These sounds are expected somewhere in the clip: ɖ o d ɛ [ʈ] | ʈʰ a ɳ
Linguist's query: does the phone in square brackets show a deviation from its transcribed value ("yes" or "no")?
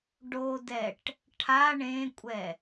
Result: no